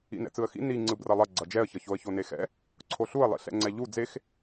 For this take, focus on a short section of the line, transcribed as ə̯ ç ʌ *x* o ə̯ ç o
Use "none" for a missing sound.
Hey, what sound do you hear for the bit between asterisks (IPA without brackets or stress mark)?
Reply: ç